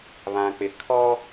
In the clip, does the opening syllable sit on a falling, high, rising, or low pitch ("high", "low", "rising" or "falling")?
low